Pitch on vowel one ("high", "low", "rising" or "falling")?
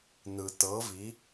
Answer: low